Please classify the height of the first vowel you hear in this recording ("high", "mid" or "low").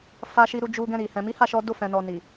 low